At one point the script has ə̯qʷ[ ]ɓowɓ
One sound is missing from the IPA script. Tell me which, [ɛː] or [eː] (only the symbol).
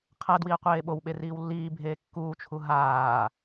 eː